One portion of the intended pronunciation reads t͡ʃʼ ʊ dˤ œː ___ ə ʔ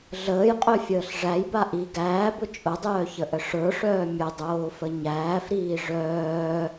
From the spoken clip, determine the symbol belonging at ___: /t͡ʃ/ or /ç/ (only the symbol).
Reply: ç